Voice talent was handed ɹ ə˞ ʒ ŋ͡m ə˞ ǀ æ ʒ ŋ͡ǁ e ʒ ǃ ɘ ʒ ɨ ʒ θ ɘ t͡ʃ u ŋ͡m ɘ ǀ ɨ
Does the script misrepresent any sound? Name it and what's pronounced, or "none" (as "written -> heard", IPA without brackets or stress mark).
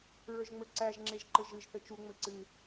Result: none